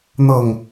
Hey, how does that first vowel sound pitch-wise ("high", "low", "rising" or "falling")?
falling